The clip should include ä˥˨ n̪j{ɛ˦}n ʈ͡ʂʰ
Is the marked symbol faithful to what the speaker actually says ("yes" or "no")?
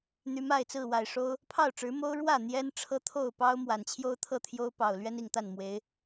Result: yes